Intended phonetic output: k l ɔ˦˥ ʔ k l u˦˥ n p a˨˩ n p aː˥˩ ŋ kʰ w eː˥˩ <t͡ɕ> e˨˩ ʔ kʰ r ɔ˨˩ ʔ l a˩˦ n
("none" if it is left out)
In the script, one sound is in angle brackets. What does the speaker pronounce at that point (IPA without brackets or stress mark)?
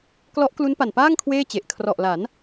t͡ɕ